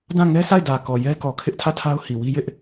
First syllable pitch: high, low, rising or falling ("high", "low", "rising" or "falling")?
falling